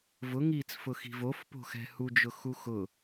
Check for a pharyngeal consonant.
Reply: absent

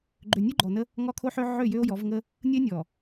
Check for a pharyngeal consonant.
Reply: present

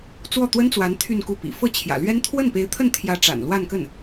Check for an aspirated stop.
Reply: present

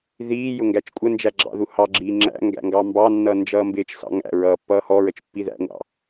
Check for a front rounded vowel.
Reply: absent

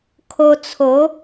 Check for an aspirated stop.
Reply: present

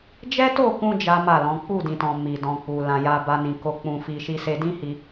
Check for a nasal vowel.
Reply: present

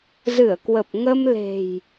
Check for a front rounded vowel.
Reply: absent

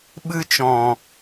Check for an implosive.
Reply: present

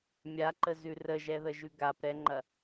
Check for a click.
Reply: present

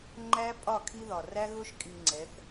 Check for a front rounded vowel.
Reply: absent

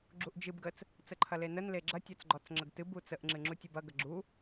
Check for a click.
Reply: present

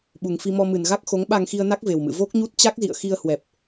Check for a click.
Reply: absent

